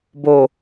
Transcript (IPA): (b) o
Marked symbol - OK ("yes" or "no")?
yes